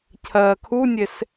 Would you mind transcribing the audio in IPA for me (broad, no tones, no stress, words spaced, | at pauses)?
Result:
cʰɜːkʰunʲes